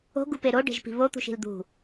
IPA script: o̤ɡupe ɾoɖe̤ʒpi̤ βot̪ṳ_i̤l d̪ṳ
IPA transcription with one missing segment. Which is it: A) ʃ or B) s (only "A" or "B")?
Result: A